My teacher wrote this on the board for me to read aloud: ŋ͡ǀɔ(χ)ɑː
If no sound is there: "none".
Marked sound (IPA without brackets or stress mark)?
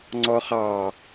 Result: χ